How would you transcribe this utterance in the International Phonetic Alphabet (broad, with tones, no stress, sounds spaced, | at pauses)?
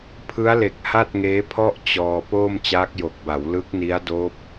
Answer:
pʰ ɯ˦˥ a̯ l e˨˩ k̚ h a˥˩ t̚ ŋ eː˦˥ pʰ ɔ˥˩ ʔ t͡ɕ ɔː˧ p oː˥˩ m t͡ɕ aː˦˥ k̚ j o˨˩ k̚ b a˩˦ w l ɯ˦˥ k̚ n i˦˥ a̯ d oː˦˥ p̚